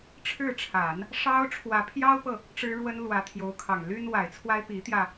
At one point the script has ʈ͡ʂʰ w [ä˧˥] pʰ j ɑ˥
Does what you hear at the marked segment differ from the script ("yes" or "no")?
no